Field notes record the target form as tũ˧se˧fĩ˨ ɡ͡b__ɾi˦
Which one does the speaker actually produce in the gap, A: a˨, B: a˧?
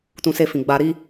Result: B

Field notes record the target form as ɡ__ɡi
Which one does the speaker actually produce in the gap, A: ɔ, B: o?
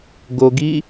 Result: B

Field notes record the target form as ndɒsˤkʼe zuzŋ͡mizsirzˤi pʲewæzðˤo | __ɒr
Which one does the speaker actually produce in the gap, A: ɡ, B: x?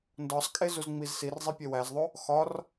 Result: B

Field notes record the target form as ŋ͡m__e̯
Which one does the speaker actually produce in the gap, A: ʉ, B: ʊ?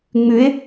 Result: A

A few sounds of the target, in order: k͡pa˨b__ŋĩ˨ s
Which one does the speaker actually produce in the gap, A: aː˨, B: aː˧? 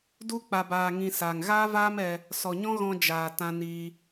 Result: A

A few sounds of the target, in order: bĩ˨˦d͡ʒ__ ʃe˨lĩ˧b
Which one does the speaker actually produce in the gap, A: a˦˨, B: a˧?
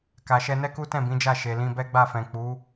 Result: A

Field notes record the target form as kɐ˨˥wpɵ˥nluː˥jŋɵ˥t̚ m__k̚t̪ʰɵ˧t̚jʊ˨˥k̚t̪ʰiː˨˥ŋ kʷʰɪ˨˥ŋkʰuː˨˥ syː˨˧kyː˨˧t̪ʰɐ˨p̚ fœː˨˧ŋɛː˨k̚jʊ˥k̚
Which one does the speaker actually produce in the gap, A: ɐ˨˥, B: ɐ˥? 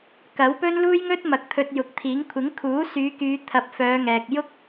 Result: A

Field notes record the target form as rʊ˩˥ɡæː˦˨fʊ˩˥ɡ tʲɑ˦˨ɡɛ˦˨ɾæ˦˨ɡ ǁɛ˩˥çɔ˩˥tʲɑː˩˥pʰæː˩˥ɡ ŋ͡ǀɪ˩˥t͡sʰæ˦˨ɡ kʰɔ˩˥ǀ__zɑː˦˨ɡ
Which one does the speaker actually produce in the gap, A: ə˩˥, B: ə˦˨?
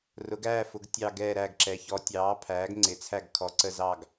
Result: B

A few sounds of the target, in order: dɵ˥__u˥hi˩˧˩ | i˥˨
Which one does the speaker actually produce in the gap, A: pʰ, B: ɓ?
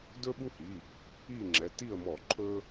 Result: B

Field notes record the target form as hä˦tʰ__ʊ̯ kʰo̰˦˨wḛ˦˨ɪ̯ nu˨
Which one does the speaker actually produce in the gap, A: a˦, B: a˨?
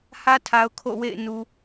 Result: B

